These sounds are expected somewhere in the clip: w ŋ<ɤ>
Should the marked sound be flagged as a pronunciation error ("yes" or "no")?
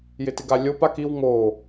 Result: yes